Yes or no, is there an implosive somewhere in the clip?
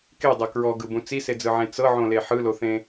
no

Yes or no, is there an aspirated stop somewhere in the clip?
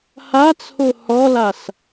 yes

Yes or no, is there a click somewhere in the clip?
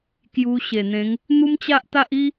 no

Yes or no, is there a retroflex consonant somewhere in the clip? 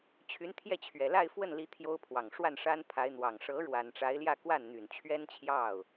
yes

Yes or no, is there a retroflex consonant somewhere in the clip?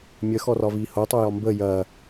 no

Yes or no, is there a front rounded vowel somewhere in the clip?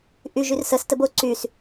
yes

